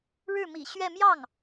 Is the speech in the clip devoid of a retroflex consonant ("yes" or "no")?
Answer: no